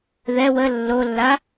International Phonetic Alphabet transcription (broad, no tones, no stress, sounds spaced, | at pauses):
ð ɛ w ə lː o lː a